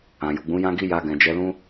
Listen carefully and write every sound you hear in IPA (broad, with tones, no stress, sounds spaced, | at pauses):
ã˨ j u˨ ɡ͡b ũ˨˦ j ã˦ ɡ i˦ j a˧ ɡ ɛ̃˨ d͡ʒ ɛ˨˦ l ũ˦